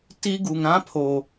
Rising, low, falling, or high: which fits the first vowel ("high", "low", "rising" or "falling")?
high